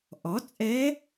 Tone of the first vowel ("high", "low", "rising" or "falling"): rising